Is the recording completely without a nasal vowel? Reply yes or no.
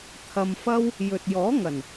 yes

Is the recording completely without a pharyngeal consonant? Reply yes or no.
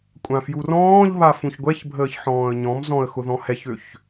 no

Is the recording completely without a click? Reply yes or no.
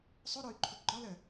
no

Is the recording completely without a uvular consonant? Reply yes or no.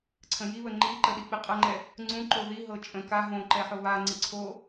no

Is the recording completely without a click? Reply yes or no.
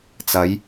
yes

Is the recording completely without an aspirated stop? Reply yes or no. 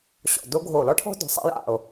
no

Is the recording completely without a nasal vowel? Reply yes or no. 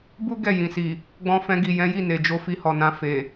no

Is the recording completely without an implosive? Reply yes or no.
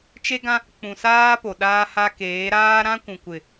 no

